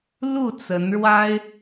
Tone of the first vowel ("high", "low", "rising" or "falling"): falling